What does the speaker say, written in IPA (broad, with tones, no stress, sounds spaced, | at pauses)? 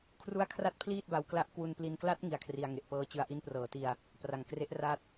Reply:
kʰ r u˦˥ a̯ kʰ r a˦˥ t̚ pʰ l iː˥˩ t̚ b a˧ w k l a˦˥ ʔ k w u˧ n p l i˧ n k l a˦˥ t̚ ŋ i˦˥ a̯ kʰ r i˧ a̯ ŋ e˨˩ ʔ p ɤː˦˥ t͡ɕ ɯ˧ a̯ ʔ i˦˥ n p r ɤː˩˦ t i˧ a̯ | p r a˨˩ ŋ k r e˦˥ ʔ r a˥˩ t̚